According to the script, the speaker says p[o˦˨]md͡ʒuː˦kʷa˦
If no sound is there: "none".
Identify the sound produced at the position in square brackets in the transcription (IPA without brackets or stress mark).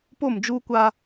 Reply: o˦˨